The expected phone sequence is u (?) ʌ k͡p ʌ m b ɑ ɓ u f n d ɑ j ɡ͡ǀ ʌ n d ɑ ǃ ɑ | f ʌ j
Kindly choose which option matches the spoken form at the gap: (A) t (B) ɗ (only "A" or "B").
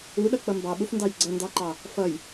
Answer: B